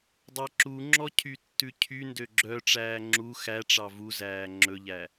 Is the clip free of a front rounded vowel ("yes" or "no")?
no